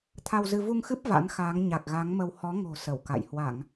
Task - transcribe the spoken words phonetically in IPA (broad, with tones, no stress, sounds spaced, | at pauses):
t̪ʰ a˧ w z ɨ˧ v u˧ ŋ x ɨ˦˥ p̚ v a̰˧˥ n x aː˨˦ ŋ ɲ a˨˩ k̚ ɣ a˨˦ ŋ m ə˧ w h ɔ˨˦ ŋ o̤˨˩ s ə˧˩ w k a̰˧˨ j h w a˧˩˨ ŋ